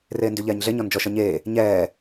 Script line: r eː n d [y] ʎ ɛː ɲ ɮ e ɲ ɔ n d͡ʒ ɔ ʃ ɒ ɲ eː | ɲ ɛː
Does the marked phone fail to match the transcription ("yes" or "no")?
no